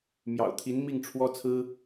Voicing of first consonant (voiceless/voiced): voiced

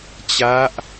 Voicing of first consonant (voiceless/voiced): voiceless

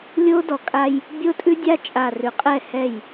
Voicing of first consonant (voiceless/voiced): voiced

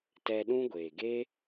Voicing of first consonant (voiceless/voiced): voiceless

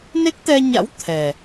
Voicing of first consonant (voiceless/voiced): voiced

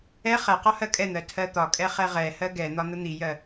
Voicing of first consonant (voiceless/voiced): voiceless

